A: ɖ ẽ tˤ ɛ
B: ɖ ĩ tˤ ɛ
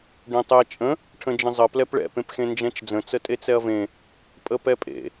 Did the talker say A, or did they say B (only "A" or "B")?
A